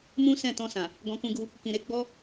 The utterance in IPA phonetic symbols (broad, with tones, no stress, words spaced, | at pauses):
mũ˦sɛ̃˦˨ tɔ̃˧sã˨ | ɡɔ̃˧kũ˧ɡu˧ | kĩ˧ɾe˦ ɡ͡bɔ˦